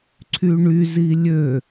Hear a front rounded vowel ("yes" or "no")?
yes